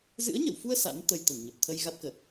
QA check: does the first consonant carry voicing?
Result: yes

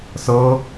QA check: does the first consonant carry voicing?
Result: no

